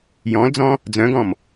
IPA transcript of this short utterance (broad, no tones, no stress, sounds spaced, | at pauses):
j ɔ̃ l d͡z ɔ̃ | d͡z œ̃ ɡ ɔ̃ m